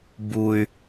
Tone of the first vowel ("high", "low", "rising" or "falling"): high